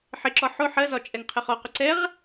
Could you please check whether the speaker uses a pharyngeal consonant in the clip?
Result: yes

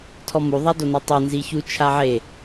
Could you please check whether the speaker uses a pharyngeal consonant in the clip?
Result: yes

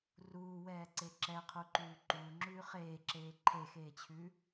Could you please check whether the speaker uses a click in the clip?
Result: yes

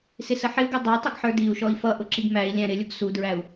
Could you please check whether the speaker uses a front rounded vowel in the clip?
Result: no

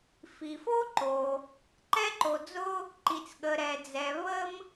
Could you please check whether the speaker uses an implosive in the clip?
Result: yes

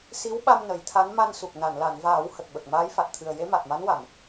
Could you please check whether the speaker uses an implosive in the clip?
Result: yes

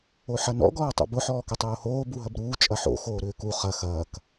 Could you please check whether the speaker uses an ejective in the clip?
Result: yes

